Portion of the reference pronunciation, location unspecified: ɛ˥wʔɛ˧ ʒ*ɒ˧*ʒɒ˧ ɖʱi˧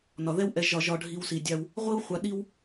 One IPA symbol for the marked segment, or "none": ɒ˧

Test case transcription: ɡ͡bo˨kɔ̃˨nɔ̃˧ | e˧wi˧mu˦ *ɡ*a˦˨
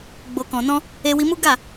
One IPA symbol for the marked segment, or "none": ɡ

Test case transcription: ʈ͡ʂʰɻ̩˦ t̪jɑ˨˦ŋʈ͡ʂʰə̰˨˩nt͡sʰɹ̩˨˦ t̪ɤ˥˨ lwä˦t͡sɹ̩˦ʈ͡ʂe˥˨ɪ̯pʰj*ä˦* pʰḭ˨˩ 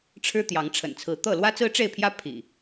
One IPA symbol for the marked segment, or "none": ä˦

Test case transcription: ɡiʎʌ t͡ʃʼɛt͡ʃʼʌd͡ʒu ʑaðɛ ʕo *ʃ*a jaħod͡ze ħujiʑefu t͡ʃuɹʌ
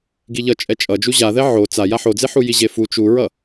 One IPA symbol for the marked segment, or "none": t͡s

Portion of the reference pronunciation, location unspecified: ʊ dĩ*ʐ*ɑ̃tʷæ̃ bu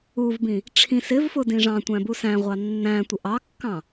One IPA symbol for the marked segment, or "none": ʐ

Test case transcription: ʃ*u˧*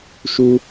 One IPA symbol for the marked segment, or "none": u˧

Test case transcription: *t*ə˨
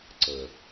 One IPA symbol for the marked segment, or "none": ǀ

